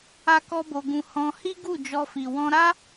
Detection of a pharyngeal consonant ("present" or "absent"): absent